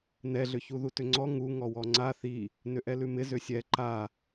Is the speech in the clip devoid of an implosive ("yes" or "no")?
yes